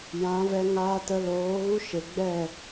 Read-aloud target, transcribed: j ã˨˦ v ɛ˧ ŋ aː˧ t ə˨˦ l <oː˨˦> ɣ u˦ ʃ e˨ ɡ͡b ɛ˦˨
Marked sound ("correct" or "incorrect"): correct